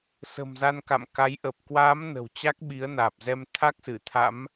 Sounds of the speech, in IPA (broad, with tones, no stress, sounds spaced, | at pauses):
s ə̤˨˩ m z a˧ n k a̰˧˨ m k a˨˦ j ʔ əː˨˩ p̚ k w aː˨˦ m n ə̤˨˩ w t͡ɕ a˦˥ k̚ ɓ i˨˦ ə̯ n aː˨˩ p̚ z ɛ˧ m t̪ʰ a˦˥ k̚ s ɨ˧˩ t̪ʰ a̰˧˥ m